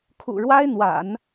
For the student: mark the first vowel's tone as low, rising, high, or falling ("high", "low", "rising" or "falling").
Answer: low